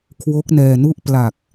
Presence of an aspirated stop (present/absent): present